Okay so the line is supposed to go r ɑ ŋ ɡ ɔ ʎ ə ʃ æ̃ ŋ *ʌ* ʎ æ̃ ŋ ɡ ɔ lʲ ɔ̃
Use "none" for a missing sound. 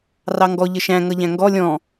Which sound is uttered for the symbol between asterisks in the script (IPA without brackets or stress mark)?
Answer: ʌ